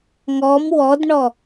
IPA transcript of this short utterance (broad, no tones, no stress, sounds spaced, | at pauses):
ŋ ɔ m w ɔ d ɳ ɔ